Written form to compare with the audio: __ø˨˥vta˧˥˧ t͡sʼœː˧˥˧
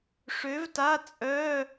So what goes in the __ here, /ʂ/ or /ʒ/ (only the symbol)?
ʂ